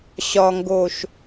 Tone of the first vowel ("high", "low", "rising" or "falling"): low